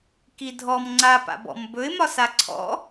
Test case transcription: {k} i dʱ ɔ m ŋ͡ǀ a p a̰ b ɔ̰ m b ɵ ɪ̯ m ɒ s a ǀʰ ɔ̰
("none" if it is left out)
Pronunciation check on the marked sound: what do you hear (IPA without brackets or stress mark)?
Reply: k